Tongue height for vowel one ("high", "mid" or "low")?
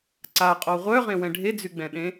low